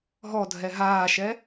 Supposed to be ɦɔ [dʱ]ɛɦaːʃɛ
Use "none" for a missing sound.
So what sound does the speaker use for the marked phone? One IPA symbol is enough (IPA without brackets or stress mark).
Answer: dʱ